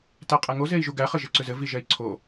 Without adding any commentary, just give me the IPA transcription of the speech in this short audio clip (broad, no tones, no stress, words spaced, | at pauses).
tæqʼæŋo zei̯ʒuɡæ χɘʒɘǀʏzɘ viʒɛi̯ǀʰo